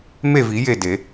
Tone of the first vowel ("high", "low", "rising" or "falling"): falling